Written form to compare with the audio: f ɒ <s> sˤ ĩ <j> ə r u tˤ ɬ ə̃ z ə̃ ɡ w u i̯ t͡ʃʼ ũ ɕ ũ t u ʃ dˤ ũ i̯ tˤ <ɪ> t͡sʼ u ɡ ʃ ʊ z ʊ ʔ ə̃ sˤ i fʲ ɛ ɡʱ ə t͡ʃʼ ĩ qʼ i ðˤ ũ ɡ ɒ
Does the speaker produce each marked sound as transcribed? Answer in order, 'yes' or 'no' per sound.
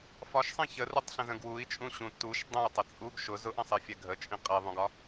no, no, yes

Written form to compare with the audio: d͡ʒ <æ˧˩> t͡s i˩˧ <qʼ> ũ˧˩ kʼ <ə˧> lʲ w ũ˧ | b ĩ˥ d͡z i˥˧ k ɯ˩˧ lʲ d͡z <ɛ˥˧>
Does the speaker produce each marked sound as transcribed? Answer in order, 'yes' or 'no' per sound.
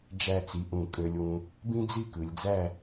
yes, no, no, no

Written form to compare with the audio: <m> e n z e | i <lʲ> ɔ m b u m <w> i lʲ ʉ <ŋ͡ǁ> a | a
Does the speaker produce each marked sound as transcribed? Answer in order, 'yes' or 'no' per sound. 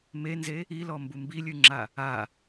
yes, no, no, yes

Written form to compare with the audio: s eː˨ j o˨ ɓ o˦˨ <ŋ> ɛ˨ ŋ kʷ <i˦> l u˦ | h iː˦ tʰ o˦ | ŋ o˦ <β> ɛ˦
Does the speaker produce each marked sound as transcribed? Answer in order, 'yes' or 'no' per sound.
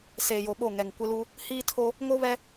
yes, no, yes

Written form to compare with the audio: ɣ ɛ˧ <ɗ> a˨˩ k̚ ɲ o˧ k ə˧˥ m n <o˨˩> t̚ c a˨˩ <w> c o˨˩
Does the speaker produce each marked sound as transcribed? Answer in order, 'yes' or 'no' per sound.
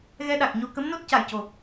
yes, no, no

